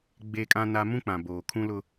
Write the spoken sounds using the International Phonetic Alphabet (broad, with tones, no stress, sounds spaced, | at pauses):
ɡ͡b e˦ kʼ ã˦ n a˦ m ũ˦ k͡p ã˨ b oː˨ kʰ ũ˦ l ʊ˦